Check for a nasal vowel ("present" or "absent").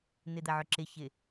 absent